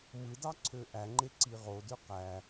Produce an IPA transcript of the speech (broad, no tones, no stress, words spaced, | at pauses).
mɯdɑǀʰø ʔæŋ͡ǃeǀi ʁodø qæ